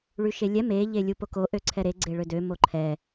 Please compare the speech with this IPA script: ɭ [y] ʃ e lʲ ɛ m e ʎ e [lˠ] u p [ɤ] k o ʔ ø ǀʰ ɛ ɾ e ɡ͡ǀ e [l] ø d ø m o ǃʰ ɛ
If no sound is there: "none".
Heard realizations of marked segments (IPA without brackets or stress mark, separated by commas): y, lʲ, o, ɭ